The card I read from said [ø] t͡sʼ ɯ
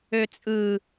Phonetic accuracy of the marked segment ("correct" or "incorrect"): correct